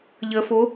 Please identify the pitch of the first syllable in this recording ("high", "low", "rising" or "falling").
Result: low